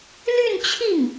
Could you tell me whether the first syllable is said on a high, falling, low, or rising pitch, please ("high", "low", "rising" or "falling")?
falling